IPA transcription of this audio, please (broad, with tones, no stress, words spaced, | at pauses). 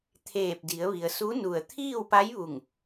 t̪ʰeː˧˩p̚di˩˧ə̯ʋi˩ə̯su˧˥ nu˧˩ə̯ t̪ʰiː˥˨wpa˧˥jʋu˧˩ŋ